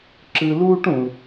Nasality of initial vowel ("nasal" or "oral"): oral